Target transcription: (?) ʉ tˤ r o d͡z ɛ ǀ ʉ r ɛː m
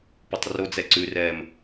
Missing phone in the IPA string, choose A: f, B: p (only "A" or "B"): B